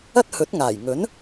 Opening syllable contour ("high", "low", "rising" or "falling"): high